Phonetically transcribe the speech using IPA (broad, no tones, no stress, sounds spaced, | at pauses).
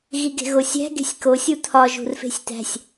ɣ i ɡ e̤ ɣ o sʲ æ̤ ɡ e̤ sʲ k o sʲ u t̪ʰ ɒ ʒ ṳ r f e̤ sʲ t̪ æ̤ sʲ